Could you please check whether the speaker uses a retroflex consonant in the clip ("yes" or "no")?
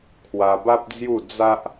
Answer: no